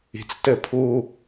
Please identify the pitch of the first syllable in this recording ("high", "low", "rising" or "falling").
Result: low